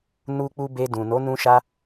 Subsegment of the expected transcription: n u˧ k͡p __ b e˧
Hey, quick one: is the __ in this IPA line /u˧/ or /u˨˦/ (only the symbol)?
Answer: u˧